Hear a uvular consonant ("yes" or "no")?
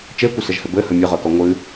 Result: yes